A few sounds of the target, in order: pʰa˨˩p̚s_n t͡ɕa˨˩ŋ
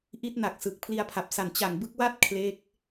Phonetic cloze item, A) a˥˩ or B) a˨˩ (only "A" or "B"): B